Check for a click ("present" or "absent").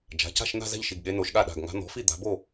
absent